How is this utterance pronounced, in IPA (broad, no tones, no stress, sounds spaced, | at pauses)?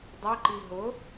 dˤ ɛ ǃ i ɦ ʊ